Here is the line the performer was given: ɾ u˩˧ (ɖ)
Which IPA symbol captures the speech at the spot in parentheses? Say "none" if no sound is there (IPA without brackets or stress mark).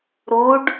ɖ